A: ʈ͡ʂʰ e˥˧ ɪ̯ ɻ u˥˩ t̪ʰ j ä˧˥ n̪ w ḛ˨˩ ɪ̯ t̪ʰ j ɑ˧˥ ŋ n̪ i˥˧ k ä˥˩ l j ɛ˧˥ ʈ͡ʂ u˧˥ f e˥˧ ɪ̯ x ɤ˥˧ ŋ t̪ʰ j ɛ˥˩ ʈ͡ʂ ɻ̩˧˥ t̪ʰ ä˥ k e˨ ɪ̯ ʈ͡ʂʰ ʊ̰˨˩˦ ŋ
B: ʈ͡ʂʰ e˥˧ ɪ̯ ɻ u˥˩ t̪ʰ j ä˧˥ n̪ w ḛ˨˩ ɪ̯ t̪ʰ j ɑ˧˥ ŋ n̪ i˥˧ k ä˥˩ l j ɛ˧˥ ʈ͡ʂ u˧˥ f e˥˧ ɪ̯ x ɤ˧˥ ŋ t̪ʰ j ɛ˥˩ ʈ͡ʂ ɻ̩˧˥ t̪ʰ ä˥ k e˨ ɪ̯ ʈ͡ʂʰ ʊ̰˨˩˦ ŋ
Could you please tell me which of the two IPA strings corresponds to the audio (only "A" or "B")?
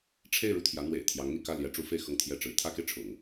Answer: A